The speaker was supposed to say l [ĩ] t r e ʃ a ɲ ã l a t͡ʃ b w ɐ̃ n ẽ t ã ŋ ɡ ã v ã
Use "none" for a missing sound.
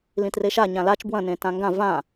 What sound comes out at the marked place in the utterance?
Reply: ĩ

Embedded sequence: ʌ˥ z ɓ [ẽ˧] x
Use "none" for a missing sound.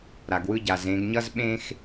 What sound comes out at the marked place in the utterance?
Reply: ẽ˥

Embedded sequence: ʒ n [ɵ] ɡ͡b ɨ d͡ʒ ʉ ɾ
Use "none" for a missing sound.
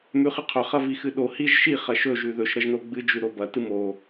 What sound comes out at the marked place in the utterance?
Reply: o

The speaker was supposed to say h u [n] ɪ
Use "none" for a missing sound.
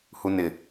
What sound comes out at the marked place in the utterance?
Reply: n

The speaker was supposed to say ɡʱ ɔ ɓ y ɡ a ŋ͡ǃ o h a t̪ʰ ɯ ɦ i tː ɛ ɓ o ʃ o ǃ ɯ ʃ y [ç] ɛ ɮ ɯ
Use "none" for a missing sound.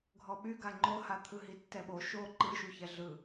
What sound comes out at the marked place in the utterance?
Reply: ç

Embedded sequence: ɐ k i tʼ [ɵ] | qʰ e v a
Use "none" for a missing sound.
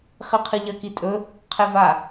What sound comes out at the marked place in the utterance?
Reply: ɵ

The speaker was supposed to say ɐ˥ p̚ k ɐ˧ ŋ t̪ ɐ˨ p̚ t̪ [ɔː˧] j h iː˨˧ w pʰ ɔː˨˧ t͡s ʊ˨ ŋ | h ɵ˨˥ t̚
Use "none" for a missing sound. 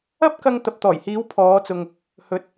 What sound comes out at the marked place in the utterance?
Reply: ɔː˨˩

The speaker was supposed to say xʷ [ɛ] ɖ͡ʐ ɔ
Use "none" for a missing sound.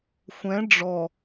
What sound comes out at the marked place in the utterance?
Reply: ɛ̃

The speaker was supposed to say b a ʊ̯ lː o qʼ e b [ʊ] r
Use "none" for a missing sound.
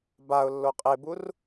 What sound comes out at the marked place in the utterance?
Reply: u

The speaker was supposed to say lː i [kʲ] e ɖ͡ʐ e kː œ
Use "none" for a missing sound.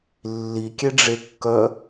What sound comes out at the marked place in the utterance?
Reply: kʲ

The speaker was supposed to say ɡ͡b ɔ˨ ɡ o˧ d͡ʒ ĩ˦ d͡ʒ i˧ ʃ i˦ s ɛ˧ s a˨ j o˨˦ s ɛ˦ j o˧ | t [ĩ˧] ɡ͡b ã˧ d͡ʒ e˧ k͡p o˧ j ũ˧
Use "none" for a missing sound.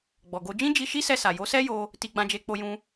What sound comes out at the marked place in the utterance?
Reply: i˧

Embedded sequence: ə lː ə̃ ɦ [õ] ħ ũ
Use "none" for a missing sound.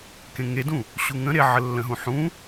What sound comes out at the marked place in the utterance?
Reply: ũ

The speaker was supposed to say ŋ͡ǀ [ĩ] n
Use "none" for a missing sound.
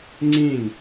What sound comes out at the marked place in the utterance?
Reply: ĩ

